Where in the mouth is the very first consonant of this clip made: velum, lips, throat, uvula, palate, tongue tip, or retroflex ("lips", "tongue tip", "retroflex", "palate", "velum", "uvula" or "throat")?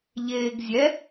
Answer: palate